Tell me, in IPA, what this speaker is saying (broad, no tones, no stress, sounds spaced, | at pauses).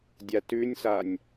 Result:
dʲ a t ʉ nʲ s a nʲ